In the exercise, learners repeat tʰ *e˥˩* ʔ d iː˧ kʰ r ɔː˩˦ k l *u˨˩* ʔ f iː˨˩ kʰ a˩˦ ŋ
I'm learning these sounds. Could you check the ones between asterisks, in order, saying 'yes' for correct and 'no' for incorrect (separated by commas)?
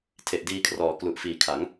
no, yes